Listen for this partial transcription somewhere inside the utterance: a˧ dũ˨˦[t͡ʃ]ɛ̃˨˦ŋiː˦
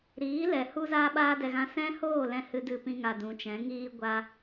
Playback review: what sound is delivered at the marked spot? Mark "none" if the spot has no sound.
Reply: t͡ʃ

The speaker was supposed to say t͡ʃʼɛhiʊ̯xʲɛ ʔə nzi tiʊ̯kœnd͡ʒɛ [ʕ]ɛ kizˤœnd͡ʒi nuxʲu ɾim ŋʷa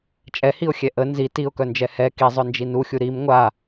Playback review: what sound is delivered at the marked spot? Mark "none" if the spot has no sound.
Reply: h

